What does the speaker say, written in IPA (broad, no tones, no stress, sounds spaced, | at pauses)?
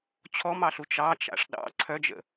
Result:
t͡ɕʰ ɔ m ɑ ɬ u t͡ʃ ɑ t͡ʃ a̰ ʂ ɗ ɑ̰ ǀʰ œ d͡ʒ ə̰